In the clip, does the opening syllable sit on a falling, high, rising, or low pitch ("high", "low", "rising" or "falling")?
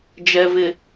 low